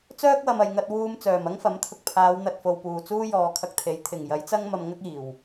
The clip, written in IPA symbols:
t͡s œː˥ k̚ w ɐ˨ m ɐ˨ j ŋ ɐ˧ t̚ w uː˧ m t͡s œː˨˩ m ɐ˥ ŋ f ɐ˨˥ m t̪ʰ ʊ˨ k̚ pʰ aː˨˧ w n̪ ɐ˨ t̚ f o˨ w p uː˨˩ t͡s uː˥ j ɔː˨ kʰ ɐ˧ k̚ t̪ʰ e˨˥ j t̪ʰ ɪ˨˩ ŋ j ɐ˨˥ j t͡s ɐ˥ ŋ m ɐ˧ m ŋ ɐ˥ k̚ iː˨˩ w

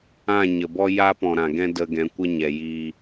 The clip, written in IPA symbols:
ã˦˨ ɲ ə˨ b ɔ˦ j a˦ p ɔ̃˨ ɾ ã˨ ɡ ɛ̃˧ d ə˧ ɡ ɛ̃˨˦ kʷ ə˦ ɲ ɛ˨ j iː˧

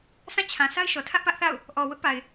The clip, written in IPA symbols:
sʰ ã˦˨ t͡ɕʰ ã˨ s a˦ ɪ̯ ʃ ɔ˨ tʰ ä˦ ʔ p ä˦ ʔ θ a̰˦˨ ʊ̯ | ʔ ɔ˨ w ʊ˦ ʔ p a˨ ɪ̯

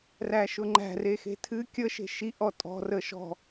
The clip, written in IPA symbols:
r æ ʃ ʊ ŋ͡ǃ æ̤ r e x e̤ tʰ ɨ kʲ ə ʃ e̤ ʃ i ʔ ɔ tʼ ɔ̤ r ə ʃ ɔ̤

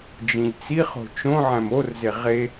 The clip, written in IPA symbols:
d͡ʒ ĩ ʎ t͡s i χ o̤ t͡ʃ õ ʕ æ̃ m o r z e ʁ e

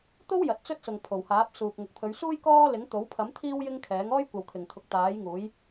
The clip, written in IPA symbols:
t̪ o˥ w j ɐ˨˥ t̚ t͡s ɵ˥ t̚ s ʊ˨ ŋ pʰ o˨˩ w h aː˨˥ p̚ s uː˨ k̚ ŋ ʊ˨ k̚ t̪ʰ ɵ˨˧ ɥ s uː˥ j k ɔː˥ l ɪ˨˥ ŋ t̪ o˨˥ w pʰ ɐ˨˥ m t̪ʰ iː˥ w j ɪ˥ ŋ kʰ ɛː˨˥ ŋ ɔː˥ j kʷ ɐ˨ w kʰ ɪ˨˩ ŋ t̪ʰ ʊ˨ k̚ t̪ aː˨˥ j ŋ uː˨˥ j

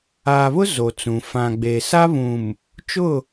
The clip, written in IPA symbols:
aː˨ β ʊ˦ z o˨ t͡s ũ˨ f ã˨ ɡ͡b e˨ s a˦ β ũ˨ m | t͡ʃ ʊ˦˨

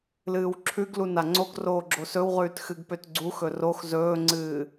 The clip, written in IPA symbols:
l ɨː w ǁʰ ʉ ɡ l u n a ŋ͡ǀ o ɡ r oː ɡ͡ǁ o s ɵ w ʁ ʉː t x ɨ ɡ p ø t ɡ͡ǀ u x ɵ r o x z ɵː ŋ͡ǀ ɨː

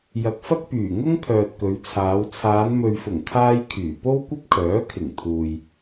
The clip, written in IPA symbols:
j ɐ˨ k̚ f ɐ˥ k̚ p yː˨˩ ŋ ʊ˥ ŋ pʰ œː˨ t̚ k ɵ˨˧ ɥ t͡sʰ aː˨˧ w t͡sʰ aː˨˧ n m ɵ˨ ɥ f ʊ˨˩ ŋ kʰ aː˧ j kʰ yː˨˩ p o˥ w kʷ ɐ˥ p̚ kʰ œː˨˥ kʰ ɪ˨˩ ŋ t̪ʰ uː˨ j

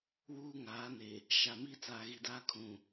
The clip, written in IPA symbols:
w uː˦ ŋ aː˨˦ n e˨ | ʃ a˨ m iː˦ t͡s aː˨ ɣ i˨ d aː˦ kʰ ũ˨

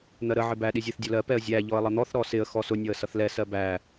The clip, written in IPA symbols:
n̪ ɜ ɾ ə ʕ ɪ b æ ɗ i zʲ æ θ dʲ ʌ l ɜ p ɛ ə̯ zʲ æ ʎ ɔ ə̯ lˠ ʌ n̪ ɔ θ ɾ ɔ s ɪ ə̯ x ɔ s ʊ nʲ ɔ ə̯ s ʌ θ l ɛ s ɜ b æ

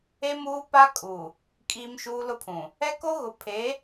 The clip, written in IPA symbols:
e˦ m uː˦ p a˦ kʼ u˨ | kʼ iː˦ m ʃ uː˦ l ʊ˦ pʰ ũ˨ | ɛ˦ k o˦ ɣ ʊ˨ pʰ e˨˦

